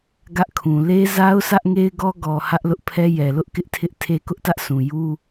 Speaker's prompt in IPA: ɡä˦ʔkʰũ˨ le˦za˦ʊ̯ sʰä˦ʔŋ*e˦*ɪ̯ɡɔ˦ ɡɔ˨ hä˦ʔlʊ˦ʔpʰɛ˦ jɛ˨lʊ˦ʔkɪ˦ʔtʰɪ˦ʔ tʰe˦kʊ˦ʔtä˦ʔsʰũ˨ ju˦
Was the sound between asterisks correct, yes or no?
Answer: yes